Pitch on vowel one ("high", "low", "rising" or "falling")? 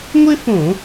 high